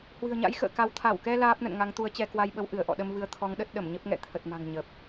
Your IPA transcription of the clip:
hwɨ̤˨˩ə̯ɲa̰˧˥jxə̰ː˧˨ka˨˦w t̪ʰa˧˩wkɛ˧ laː˦˥p̚nə̰˧˨nŋa˨˦ŋ t̪u˨˦ə̯t͡ɕɛ˧kwa˧jɓə˨˦w ʔɨ˧˩ə̯ʔɔ̰˧˨ɗə˧mvɨ˨˦ə̯ t̪ʰɔ˨˦ŋɗə˦˥t̚ ɗə˧˩mɲə˦˥p̚ŋɛ̰˧˨ t̪ʰə˨˩t̚ma̤˨˩ŋ ɲə˨˩p̚

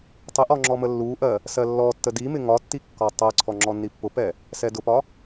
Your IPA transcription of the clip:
tˤɪʔɔ ŋ͡ǁɔməlːuʔɜ | sɜlːɔtːə dimɪ ŋɒtːi kːɒtˤɜǀʰɔ ŋ͡ǁɔnːipːʊpɛ | sɛdʊpɒ

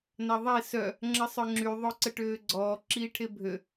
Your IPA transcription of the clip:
naðˤe sœ | ŋ͡ǁəsˤœŋ͡ǁy ðˤoǀəʈøːɡ͡ǀɔː ǁiːʈʰebʱø

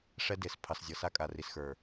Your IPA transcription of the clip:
ʂɛ˦de˨s pʰɑ˨szʲɤ˨ sa˦kʼa˨ri˨sxə˞˨

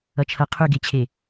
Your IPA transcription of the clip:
ʌt͡ʃʰʌ qʰʉɡet͡ɕʰe

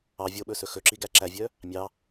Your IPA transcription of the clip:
ɑ vʲoɓɵsɵ xɵǁiɡæ ǁævʲœ | mʲɑ

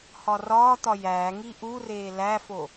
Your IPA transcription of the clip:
hɒrɒːt̪ɒ jæːŋi ʔureː læfo

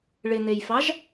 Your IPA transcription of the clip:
ɭɪn̪ejfɑʒ

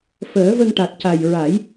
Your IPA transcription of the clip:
fəː˨˩˦və˧ŋʈa˨˩t̚ca˨˩j ɹa˨˩˦j

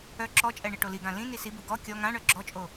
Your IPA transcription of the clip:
œ ǁɔt͡ʃʼɛ ɳiʈoliɡã lĩ nisibu ɡɔ kʲɔ ŋãɳœ ɡ͡ǁɔt͡ʃʼo

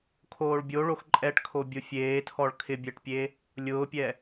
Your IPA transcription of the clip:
kʰoːɭbʲoɭox ǃʼɛʈkʰo bʲʊfʲeːtʰɔɭ kʰɪbʲɛʈpʲe | lʲʊːpʲɛ

